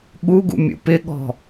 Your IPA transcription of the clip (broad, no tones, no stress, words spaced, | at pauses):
ɠuɡṵ mʲṵpɪɠɔ̤